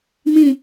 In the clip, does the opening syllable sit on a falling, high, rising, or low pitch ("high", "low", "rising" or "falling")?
low